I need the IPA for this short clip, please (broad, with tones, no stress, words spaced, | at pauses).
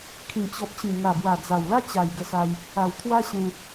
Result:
kʰĩ˨˩t͡ɕɔ˨p̚t͡ɕĩ˨˩ ŋa˨˩bwa˨˩d͡za˨˩wla˦ t͡ɕa˨˩jɡə˧sa˧j | a˨˩wt̪ʰwa˦ɕẽ˧